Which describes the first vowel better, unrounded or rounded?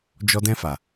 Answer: rounded